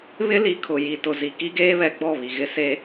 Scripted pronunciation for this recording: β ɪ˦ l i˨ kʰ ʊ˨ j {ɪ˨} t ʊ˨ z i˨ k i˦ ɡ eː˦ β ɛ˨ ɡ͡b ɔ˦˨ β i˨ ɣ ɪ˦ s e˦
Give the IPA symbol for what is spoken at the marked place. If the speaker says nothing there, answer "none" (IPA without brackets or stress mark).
i˨